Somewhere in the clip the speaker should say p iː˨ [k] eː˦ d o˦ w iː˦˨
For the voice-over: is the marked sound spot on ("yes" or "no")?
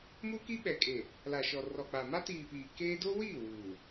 yes